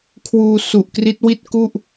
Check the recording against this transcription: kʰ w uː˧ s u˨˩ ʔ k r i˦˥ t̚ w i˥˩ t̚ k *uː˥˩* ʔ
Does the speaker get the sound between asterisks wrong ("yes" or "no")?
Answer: yes